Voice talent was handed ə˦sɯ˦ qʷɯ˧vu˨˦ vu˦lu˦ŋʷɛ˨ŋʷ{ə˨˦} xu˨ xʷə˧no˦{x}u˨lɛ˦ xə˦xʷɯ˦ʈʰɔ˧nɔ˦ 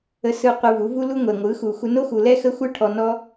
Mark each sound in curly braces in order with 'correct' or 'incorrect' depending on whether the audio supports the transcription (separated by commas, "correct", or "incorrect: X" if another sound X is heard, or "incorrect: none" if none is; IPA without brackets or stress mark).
incorrect: ɯ˨˦, correct